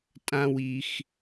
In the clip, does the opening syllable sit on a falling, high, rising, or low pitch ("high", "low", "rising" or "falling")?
low